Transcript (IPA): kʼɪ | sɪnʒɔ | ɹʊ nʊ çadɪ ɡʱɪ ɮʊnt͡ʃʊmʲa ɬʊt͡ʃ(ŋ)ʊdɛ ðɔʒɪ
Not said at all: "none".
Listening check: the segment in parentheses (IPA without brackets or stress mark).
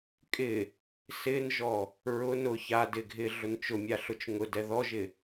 ŋ